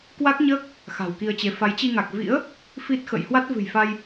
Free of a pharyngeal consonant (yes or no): yes